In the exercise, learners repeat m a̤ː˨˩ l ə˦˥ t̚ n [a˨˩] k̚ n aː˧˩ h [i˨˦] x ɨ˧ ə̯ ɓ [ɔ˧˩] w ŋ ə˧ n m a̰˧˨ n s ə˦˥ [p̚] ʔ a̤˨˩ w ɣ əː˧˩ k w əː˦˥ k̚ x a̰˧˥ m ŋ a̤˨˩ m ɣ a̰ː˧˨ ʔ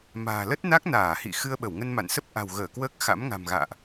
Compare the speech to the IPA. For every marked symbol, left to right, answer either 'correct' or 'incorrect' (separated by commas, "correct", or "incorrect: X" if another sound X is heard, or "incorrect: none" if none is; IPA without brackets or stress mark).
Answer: incorrect: a˦˥, incorrect: ḭ˧˨, incorrect: ə˧˩, correct